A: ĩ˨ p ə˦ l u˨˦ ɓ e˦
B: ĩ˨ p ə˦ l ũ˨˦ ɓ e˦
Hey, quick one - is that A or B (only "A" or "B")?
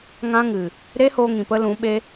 B